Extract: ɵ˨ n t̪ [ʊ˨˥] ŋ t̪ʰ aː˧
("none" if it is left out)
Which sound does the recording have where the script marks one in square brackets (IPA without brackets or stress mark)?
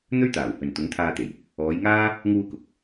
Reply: ʊ˨˥